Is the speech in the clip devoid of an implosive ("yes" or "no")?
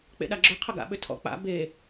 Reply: no